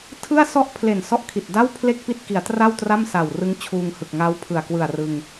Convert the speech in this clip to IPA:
tʰɯ˥˩a̯sɔ˥˩ʔ pʰle˨˩n sɔ˥˩ʔkʰi˨˩t̚ da˥˩w pʰle˥˩k̚pi˥˩t̚ki˩˦a̯tra˥˩w tra˥˩msa˨˩wrɯ˦˥ŋ t͡ɕʰuː˧ŋhɯ˨˩k̚ ŋa˦˥wpʰɯ˨˩a̯kwɯ˨˩a̯ rɯ˧ŋ

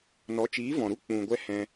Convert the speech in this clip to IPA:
nɔ˨˦t͡ʃiː˨˦vɔ̃˨ɾu˦ k͡pũ˨ɡʷɛ˧ hɛ̃˧

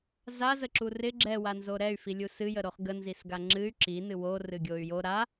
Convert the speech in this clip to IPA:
zazəǁu rɪ ɡ͡ǁɛwanzo ɾɛy̯filʲu sɨjəɾoχ ɡənzisɡa ŋ͡ǁɨy̯ ǁinɨ worɨɡʲoy̯ jo ɾa

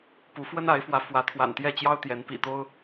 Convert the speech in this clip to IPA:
pu˧˥ fwə˥na˧˥ɪ̯fwä˧˥ fwä˧˥t̪ʰwa̰˨˩n t̪jɛ˥˩ t͡ɕjɑ˥ʊ̯ t̪jɛ˧˥n pḭ˨˩t̪o˥ʊ̯

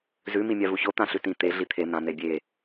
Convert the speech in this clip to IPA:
zʉ mimʲavuço t̪ãɬʉtĩ t̪e ɮit̪ʰe n̪ã n̪ebʲe

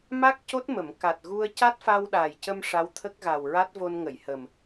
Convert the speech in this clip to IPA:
ma˦˥k̚ co˦˥t̚mə˨˩˨m ka˨˩t̚ɣu˧ə̯ ca˦˥t̚fa˧w ɗaː˨˩jcə˧m ʂa˧˥wt̪ʰə˦˥k̚ɣa˨˩wɹa˦˥t̚ vo˧nŋə˨˩˨jhəː˨˩m

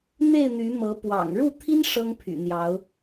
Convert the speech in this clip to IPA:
n̪e˥˨ɪ̯ n̪y˨˦mɤ˨˦ pwɑ̰˨˩ŋ ɻu˥˨t̪ʰi˦n ʂɤ˦ŋpʰy̰˨˩n̪jɑ˨˦ʊ̯

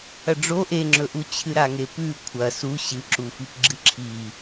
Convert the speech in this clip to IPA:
ɐɖ͡ʐo ʔeŋ͡ǁɵʔu t͡ɕʰɨɾaŋepʉ kʷʰɐ su ɕɨ ǁufipɡ͡ǁɨǁʰi

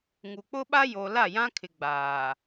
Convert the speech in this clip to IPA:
ŋu˨k͡pʊ˦ɓa˦ jo˨la˦˨jã˦kʰɪ˨ ɡ͡baː˨

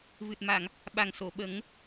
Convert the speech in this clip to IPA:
vɨ˨˩t̚ma˨˩˨ŋ | ɓa˨˩ŋso˨˩˨ ɓə˨˩˦ŋ

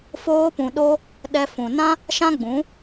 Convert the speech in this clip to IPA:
foː˧pũ˨ɗo˧ | ɗɛ˧ fũ˨nã˦ | ʃã˦ɡ͡bũ˨˦

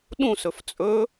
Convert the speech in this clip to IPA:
ɗũsɵf t͡sʼɵ

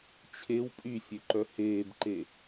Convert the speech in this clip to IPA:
t͡ɕʰew pʼyfʲøǃœ heːbǃe

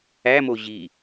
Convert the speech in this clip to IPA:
æmo ʑi

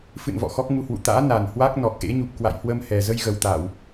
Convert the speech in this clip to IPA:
fɨ̰˧˨n vɔ̰˧˨xɔ˦˥k̚ŋu˧hwṵ˧˨ t̪a̰ː˧˥ na˨˩n hwa˦˥k̚nɔ˨˩k̚ʔḛ˧˥ ɲu˨˩p̚kwa̰˧˨jhwə˧mhɛ˨˩ zə˧jɣə˨˩wt̪aː˧˩˨w

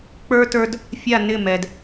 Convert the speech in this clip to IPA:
k͡pə˞˦tə˞˦d | fʲa˦˨nɪ˦˨ mɛ˧d

